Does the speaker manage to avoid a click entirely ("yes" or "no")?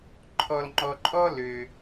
no